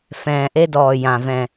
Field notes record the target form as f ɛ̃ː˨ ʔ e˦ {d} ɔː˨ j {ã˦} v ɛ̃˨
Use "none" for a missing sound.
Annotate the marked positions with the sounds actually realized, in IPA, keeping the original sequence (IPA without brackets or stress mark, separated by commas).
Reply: d, ã˨